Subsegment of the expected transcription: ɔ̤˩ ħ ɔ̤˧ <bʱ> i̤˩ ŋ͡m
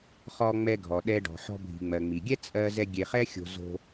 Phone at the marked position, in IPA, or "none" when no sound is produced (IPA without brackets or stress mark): bʱ